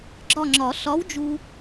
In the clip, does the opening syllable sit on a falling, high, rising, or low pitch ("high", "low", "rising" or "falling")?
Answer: falling